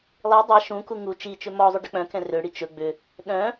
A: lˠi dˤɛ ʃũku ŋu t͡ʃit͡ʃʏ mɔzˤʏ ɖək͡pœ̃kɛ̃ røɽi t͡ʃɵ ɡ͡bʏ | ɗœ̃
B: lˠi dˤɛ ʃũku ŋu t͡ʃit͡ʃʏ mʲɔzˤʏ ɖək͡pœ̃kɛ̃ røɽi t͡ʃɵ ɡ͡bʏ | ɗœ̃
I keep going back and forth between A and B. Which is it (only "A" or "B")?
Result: A